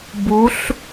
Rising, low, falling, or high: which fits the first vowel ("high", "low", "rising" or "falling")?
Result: rising